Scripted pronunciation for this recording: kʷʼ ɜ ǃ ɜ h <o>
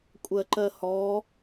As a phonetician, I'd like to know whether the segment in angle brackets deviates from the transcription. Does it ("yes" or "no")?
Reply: yes